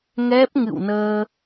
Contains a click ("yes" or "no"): no